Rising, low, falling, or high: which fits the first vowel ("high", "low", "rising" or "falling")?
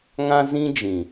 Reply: high